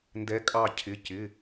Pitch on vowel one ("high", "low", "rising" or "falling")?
rising